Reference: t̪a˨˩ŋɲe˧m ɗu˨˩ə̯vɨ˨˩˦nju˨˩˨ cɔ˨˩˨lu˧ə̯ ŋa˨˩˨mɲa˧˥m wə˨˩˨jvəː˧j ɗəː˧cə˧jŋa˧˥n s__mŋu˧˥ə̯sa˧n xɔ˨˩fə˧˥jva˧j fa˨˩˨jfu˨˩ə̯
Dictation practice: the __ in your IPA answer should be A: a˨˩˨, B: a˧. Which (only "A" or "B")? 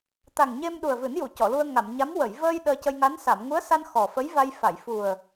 A